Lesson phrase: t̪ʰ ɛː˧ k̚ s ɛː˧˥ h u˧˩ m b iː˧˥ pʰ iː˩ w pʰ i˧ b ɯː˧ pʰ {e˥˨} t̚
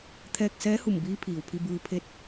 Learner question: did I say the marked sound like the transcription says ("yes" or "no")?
yes